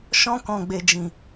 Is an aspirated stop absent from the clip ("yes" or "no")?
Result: yes